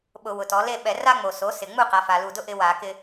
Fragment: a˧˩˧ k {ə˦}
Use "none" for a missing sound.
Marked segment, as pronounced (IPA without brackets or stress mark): ɪ˦